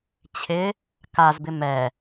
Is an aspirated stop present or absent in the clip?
present